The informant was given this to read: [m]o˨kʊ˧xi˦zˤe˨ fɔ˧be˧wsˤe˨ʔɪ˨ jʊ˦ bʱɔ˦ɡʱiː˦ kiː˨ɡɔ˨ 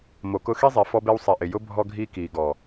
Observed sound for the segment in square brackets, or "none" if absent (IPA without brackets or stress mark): m